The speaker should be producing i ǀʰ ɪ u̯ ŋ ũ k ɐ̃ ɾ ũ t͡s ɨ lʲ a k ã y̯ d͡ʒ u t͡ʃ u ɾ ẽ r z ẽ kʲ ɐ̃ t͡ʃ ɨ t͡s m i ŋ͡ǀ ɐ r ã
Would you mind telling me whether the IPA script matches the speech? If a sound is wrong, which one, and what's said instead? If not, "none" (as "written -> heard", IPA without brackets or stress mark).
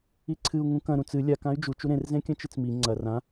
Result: ɪ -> ɨ